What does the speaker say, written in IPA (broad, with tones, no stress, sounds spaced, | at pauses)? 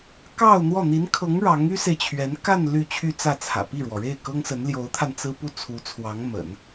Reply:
k ɑ˥˧ ʊ̯ n̪ w ɔ˥˩ n̪ i˧˥ n kʰ ɤ˧˥ ŋ ɻ ɑ˧˥ ŋ y˥ s e˨ ɪ̯ t͡ɕʰ ɥ ɛ˧˥ n k a˥˧ n l y˥˧ t͡ɕʰ y˥˧ t͡s ä˥˩ t͡sʰ ä̰˨˩ p i˥˩ ɻ w ɔ˩ ɻ e˥˩ ɪ̯ k ɤ˥ ŋ s ə˧˥ n l j o˧˥ ʊ̯ t̪ʰ a˧ n t͡s ɹ̩˥ p u˥ t͡sʰ u˧˥ t͡sʰ w ɑ˧˥ ŋ m ə̰˨˩˦ n